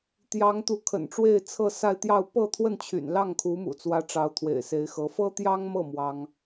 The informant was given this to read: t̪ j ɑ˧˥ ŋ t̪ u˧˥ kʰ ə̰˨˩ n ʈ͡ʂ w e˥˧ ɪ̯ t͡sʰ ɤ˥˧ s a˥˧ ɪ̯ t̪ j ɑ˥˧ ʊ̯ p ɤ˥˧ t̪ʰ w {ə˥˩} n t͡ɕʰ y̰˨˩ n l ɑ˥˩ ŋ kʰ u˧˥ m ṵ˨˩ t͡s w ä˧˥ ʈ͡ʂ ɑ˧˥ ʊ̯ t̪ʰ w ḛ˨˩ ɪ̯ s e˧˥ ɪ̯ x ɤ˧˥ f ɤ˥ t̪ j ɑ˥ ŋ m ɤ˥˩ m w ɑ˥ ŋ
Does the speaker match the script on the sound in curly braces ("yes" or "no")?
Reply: yes